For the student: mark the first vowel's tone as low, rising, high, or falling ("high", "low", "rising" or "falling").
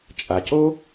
low